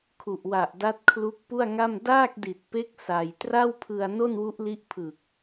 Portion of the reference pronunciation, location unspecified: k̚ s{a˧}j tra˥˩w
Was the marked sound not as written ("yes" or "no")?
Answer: no